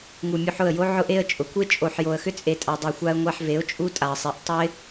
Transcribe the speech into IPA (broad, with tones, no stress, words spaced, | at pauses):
ŋu˨mʲu˧ħʊ˦˨ə̯jo˦ ʕʊ˧ʔe˧ə̯ t͡ʃʼʊ˨kʷe˦ t͡ʃʼo˨ħ jo˨ə̯xʏ˦ t͡sʼe˧ tʼa˨ dˤo˧xʷa˦ə̯ ŋʷa˧ħ ve˨˦ʊ̯t͡ʃʼu˦tʼa˨ə̯sˤe˨˦ʔ tˤʊ˦ɪ̯